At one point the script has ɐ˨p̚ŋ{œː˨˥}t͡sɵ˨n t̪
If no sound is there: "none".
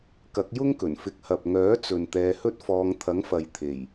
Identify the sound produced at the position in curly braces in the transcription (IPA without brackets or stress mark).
œː˨˥